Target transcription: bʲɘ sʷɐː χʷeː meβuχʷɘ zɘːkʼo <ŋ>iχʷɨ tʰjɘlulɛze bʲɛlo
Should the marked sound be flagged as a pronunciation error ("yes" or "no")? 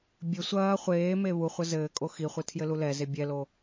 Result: yes